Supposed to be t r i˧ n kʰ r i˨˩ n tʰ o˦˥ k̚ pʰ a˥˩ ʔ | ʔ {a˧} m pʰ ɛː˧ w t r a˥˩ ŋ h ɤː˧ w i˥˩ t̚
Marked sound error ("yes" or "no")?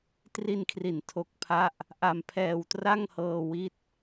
no